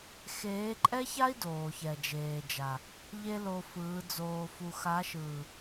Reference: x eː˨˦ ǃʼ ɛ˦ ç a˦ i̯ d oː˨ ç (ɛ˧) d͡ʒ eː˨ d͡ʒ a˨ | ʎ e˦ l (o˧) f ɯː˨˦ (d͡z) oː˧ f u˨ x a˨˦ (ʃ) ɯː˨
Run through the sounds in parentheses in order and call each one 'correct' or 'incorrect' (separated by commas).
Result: incorrect, correct, correct, correct